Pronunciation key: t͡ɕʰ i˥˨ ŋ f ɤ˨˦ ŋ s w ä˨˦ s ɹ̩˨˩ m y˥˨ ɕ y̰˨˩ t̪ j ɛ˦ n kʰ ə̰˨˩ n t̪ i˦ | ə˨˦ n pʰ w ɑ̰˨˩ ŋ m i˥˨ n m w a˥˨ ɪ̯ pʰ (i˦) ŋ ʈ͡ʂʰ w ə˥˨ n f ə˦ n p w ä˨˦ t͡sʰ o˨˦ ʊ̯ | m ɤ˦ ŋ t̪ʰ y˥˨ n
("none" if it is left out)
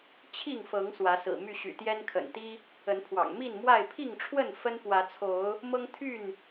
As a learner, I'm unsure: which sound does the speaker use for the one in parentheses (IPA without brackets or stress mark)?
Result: i˥˨